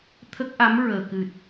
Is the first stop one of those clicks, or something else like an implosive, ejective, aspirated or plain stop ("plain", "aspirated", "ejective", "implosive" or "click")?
aspirated